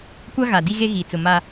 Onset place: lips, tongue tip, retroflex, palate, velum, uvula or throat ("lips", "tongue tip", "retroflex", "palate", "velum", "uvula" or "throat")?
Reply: velum